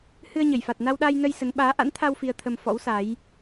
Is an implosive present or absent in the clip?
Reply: present